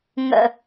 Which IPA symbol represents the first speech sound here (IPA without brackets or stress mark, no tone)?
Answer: ŋ